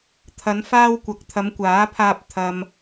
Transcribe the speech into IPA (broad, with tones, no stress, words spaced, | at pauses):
t̪ʰɐ˨˧n faː˧wkʷɐ˨k̚ t̪ʰɐ˨˧mkʷaː˨˥pʰaː˧p̚ t̪ʰɐ˨m